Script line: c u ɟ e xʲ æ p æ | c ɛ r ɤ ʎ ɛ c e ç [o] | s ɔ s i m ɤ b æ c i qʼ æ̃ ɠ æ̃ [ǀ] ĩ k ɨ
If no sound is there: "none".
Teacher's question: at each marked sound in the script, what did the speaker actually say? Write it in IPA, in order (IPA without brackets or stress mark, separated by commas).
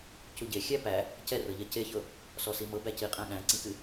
ɤ, ǀ